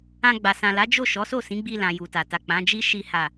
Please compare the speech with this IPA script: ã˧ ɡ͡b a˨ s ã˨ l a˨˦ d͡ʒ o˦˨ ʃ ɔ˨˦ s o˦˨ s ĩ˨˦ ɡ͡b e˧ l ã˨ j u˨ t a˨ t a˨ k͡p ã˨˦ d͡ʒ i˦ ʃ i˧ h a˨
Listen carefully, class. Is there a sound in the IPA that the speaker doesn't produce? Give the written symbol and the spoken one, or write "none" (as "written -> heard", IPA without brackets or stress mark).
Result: e˧ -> i˧